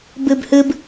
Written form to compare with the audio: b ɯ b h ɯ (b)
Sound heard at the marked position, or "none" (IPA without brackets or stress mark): b